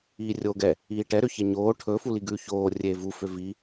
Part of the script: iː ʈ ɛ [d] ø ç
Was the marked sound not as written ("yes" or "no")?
yes